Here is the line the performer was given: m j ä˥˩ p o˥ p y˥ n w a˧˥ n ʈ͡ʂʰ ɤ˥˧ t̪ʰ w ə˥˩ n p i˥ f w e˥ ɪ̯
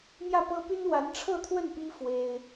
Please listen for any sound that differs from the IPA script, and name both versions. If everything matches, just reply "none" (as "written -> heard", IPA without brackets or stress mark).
o˥ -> ɤ˥